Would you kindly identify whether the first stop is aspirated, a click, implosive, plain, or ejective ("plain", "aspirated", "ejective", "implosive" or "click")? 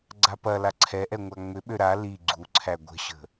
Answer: click